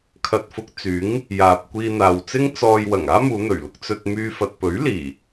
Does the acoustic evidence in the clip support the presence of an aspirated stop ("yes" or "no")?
yes